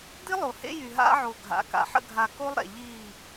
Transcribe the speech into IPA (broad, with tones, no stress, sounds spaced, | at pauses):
d̪ i˦ lˠ o˨ h ḛ˦ j y˨ ɦ a̰˦ ʕ o˨ ɡʱ a̰˨ k a̰˨ ħ ə̰˦ ɡʱ a˨ k o˦ lˠ ɾ ɛ̰˨ ʎ i˦˨